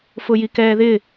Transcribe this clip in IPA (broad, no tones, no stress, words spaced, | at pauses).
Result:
fʊjikɛːðɪ